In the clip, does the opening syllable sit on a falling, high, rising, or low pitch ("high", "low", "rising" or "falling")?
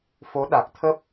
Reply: rising